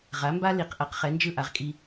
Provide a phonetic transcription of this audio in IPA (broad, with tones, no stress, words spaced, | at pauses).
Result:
ʁa˩˥mba˥ li˩qʔʌ˩q χɛ˩˥nd͡ʒɯ˥˩ ʔa˩˥ʁkʼi˧